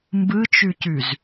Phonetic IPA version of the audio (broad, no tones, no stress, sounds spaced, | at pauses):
m b ɯ t͡ʃ ʉ c ʉ z